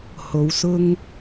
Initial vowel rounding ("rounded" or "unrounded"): rounded